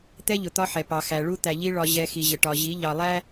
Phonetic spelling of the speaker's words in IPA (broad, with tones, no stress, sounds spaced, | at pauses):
t̪ ɛ˦ ʎ ʊ˨ t̪ ɒ˦ ħ ɛ˨ p ɑ˨ x æ˨ ɭ u˦ t̪ æ˨ ʎ i˦ ɭ ɒ˦ ʑ ɛ˦ x i˨ ʑ ə˨ ʈ ɒ˨ ʑ i˨˦ ʎ ɑ˨ lˠ æ˦